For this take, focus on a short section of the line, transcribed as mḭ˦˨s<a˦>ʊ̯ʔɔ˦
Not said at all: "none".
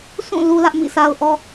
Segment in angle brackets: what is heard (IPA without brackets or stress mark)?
a˦